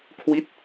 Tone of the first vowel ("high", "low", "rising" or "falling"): falling